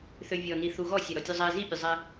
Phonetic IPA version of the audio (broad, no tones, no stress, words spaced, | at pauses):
θøvʲɔni θuɣɔ sʲæɾɔtʲuzˤæ zipʲøzˤæ